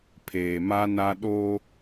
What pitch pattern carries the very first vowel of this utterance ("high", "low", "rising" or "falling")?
low